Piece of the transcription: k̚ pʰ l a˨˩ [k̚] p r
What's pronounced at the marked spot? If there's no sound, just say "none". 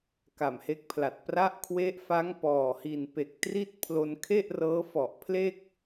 t̚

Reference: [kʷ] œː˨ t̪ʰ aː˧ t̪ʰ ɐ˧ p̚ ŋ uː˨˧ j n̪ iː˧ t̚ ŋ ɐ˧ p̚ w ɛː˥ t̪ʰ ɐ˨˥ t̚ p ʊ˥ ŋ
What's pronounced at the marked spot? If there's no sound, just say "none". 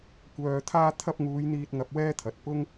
kʷ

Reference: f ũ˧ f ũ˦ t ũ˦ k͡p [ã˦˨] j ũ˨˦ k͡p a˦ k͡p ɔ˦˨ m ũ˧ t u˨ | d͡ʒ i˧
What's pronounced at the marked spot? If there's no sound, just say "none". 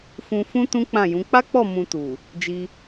ã˦˨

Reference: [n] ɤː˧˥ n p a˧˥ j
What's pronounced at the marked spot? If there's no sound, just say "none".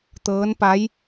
t̪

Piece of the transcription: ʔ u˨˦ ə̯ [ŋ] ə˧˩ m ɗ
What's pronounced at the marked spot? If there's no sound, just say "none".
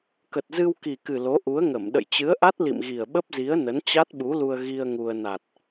ŋ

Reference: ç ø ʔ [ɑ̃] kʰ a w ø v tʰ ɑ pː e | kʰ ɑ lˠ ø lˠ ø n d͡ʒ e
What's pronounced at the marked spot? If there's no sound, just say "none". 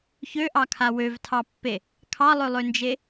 ɑ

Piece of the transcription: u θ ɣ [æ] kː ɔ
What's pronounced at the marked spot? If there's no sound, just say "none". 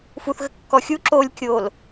ə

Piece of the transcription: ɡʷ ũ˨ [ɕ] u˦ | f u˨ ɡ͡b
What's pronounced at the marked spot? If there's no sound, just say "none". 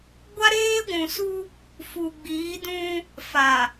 s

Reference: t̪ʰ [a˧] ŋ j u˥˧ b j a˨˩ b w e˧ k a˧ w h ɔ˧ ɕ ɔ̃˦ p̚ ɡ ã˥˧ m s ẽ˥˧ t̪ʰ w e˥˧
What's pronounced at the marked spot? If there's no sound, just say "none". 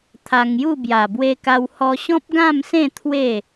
a˧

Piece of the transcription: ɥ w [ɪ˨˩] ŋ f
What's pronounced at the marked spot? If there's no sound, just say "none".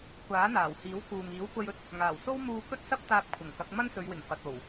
ɪ˨˩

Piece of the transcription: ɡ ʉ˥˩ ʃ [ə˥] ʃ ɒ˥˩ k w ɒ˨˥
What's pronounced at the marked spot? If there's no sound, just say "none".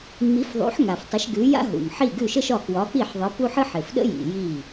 ə˥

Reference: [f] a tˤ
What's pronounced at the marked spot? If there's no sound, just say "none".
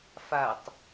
f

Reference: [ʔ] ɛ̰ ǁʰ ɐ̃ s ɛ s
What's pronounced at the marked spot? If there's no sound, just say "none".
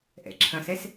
ʔ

